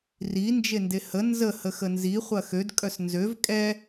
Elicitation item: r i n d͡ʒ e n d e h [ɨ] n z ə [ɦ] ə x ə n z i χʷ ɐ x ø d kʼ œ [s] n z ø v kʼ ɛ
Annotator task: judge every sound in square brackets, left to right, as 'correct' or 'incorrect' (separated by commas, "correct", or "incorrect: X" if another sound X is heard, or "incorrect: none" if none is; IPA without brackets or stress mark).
incorrect: ə, incorrect: h, correct